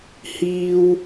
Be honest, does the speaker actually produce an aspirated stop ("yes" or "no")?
no